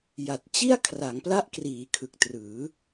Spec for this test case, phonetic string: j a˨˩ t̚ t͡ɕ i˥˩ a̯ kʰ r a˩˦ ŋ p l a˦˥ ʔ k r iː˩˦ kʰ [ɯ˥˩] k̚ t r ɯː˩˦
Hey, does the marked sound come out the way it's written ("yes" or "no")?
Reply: no